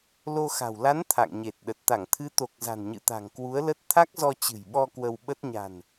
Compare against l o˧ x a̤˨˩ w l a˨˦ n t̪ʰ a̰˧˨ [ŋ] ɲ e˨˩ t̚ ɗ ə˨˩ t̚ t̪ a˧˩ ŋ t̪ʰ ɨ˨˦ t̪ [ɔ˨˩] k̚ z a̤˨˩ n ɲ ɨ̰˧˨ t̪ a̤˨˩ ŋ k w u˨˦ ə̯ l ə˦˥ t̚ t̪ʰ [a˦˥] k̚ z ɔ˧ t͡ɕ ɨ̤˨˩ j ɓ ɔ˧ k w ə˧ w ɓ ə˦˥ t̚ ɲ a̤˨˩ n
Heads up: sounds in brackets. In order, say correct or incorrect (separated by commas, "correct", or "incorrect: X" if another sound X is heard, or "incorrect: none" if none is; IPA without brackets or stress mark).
correct, incorrect: o˨˩, correct